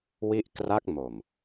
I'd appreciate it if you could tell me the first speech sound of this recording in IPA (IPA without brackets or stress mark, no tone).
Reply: w